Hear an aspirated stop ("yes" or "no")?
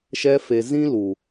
no